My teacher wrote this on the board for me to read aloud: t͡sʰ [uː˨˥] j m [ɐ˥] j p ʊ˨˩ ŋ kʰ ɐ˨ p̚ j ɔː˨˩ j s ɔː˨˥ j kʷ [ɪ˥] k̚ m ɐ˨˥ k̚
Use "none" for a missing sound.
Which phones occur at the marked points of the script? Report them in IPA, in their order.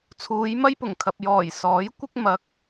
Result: uː˨˧, ɐ˥, ɪ˥

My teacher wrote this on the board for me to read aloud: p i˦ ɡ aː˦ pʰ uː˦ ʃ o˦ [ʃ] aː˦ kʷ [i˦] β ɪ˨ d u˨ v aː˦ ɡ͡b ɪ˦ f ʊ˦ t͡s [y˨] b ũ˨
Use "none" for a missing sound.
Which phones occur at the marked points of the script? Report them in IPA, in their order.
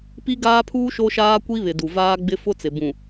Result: ʃ, i˦, ɪ˨

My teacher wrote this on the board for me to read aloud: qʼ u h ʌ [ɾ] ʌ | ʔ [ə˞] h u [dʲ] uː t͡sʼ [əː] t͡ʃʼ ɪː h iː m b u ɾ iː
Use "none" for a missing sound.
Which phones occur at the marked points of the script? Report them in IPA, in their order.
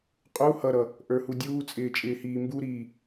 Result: ɾ, ə˞, dʲ, ɪː

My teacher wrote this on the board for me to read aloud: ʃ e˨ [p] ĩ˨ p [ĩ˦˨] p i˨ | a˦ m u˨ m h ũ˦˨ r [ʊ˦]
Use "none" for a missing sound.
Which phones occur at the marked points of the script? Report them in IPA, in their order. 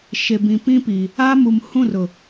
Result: b, ĩ˦, ʊ˨

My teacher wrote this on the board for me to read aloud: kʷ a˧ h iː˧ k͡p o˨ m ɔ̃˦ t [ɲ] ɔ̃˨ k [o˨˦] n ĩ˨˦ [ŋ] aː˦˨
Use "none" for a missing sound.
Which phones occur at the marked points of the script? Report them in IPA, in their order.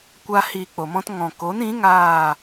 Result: ŋ, o˨˦, ŋ

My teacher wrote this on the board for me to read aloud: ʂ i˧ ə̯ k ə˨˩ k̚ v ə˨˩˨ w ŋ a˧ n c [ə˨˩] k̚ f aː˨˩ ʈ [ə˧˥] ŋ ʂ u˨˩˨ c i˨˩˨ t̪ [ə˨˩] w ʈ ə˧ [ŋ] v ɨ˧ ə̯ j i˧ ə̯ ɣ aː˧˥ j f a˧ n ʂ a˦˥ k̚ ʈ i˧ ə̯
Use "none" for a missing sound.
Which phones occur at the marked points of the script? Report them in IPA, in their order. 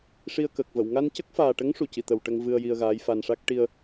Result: ə˦˥, ə˧˥, ə˨˩, ŋ

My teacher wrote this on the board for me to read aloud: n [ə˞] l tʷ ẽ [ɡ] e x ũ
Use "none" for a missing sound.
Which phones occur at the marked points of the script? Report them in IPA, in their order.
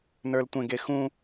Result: ə˞, ɡ

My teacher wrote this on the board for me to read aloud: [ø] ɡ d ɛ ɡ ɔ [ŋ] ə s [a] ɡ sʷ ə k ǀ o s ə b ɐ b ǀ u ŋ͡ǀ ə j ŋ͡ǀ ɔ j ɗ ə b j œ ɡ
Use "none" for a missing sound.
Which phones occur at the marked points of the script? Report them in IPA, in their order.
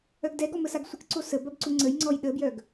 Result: œ, m, a

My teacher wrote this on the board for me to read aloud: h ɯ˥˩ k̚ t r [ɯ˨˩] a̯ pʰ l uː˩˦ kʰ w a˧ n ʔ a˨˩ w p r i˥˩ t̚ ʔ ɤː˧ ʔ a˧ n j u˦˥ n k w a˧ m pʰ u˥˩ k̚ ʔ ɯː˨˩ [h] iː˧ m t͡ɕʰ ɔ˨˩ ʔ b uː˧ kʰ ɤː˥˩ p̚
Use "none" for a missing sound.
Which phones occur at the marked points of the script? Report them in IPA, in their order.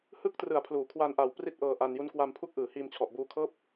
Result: ɯ˨˩, h

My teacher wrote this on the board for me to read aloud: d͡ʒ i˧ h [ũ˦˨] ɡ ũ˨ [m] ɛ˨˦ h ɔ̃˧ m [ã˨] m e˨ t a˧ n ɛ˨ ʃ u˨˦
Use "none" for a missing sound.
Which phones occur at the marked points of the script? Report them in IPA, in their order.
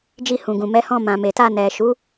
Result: ũ˨, m, ã˨

